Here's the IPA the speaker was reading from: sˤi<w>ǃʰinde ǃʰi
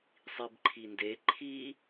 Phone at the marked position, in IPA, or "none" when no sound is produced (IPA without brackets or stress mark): b